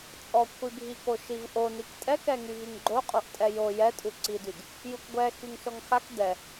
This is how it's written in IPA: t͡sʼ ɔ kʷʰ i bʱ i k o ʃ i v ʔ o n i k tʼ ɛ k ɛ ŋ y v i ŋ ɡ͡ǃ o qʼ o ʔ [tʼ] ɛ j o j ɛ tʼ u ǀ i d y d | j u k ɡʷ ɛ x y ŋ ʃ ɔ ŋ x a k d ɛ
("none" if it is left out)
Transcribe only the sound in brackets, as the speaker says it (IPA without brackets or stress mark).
tʼ